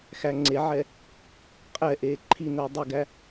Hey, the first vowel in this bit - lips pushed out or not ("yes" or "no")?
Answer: no